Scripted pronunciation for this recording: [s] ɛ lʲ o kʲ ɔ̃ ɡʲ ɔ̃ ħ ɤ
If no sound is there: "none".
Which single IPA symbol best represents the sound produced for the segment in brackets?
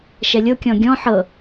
ʃ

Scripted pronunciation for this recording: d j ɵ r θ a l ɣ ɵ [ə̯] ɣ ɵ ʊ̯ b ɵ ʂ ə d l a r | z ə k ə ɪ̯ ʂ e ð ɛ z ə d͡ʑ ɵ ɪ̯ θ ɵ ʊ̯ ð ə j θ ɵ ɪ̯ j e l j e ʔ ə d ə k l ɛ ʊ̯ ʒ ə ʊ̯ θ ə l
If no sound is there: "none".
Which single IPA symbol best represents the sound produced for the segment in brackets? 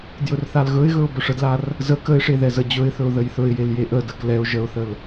ɪ̯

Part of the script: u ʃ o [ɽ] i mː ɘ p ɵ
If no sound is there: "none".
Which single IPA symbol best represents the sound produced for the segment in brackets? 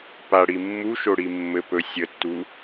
ɽ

